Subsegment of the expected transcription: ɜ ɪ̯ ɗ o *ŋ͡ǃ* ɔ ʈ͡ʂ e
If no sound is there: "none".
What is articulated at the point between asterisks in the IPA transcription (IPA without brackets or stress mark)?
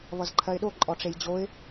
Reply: ǃʼ